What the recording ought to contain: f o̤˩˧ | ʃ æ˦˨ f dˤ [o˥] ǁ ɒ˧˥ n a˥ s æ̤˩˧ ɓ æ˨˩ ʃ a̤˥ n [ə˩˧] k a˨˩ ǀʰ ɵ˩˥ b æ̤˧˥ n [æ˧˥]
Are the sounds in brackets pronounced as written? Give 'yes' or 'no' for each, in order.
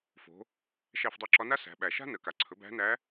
no, yes, yes

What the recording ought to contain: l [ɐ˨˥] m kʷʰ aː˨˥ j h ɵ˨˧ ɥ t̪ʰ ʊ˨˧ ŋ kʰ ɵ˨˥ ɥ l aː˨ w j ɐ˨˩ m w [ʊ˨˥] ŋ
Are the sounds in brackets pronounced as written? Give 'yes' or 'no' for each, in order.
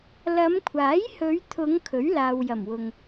no, no

